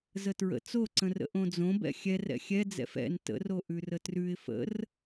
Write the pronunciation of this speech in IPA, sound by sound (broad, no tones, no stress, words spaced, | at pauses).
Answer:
zətɹə̰ t͡soǀə̃rə̰ ʔõd͡zõbɛ̰ xʲɛrɛ̰ xʲɛd͡zɛ̰f ɛ̰n tə̰ro ʔʉrətrʉɪ̯ fə̰r